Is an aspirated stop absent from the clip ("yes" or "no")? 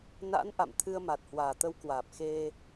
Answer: no